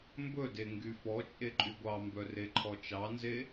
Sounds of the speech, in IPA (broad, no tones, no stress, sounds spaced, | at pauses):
m b ɵ d e ŋ ɡ y f ɔ t͡ʃʼ e ǃʼ y ɡʷ ɑ m b œ r e ǃʰ ɔ t͡ʃ ɑ n z e